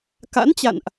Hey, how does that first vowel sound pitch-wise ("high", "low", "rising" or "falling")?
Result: rising